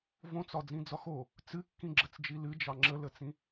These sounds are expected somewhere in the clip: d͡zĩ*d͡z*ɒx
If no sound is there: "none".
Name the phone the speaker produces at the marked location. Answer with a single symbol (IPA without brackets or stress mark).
d͡z